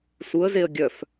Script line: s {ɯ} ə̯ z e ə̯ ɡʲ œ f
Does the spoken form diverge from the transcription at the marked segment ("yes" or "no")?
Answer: yes